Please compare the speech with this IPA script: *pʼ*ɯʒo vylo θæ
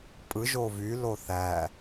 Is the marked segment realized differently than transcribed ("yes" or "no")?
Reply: no